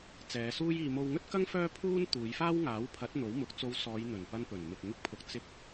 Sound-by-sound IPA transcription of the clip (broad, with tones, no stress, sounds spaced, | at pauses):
t͡s ɛː˨˧ s uː˥ j iː˧ m o˧ w ŋ ɵ˥ t̚ k ɐ˥ ŋ f œː˥ pʰ uː˥ n t̪ uː˨˧ j f aː˥ w ŋ aː˨˥ w pʰ ɐ˨˥ t̚ n̪ o˨˥ w m ʊ˨˥ k̚ t͡s o˧ w s ɔː˨˧ j n̪ ɵ˨˩ n p ɐ˧ n p ɵ˨˩ n m ɪ˨ k̚ ŋ ɪ˧ k̚ pʰ ʊ˨ k̚ t͡s ɪ˧ k̚